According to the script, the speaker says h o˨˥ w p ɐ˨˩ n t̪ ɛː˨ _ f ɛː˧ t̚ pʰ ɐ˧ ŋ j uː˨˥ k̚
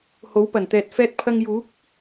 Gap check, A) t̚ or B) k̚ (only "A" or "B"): A